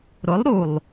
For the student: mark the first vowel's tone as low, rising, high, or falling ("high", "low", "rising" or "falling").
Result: rising